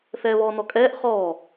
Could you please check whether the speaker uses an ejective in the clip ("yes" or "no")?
yes